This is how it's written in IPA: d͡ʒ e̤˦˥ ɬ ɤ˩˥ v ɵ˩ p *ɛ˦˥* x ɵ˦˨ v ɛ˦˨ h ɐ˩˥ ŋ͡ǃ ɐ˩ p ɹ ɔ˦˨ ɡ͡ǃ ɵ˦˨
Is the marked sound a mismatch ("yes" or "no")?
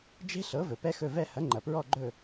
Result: no